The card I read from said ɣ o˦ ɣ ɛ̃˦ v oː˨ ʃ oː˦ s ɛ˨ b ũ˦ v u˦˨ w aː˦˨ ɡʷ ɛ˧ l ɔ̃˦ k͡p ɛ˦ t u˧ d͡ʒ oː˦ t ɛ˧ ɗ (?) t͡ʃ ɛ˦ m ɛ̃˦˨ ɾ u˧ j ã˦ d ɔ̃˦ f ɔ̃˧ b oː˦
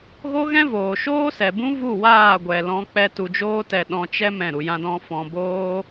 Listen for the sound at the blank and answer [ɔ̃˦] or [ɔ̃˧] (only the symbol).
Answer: ɔ̃˧